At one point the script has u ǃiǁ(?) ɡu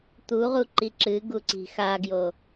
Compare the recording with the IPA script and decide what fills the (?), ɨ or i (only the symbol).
ɨ